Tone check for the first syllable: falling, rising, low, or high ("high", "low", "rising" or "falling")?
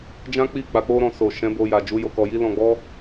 high